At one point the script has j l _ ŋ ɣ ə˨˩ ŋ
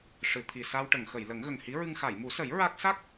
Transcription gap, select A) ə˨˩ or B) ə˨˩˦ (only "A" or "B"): B